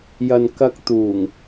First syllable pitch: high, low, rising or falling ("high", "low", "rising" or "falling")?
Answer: low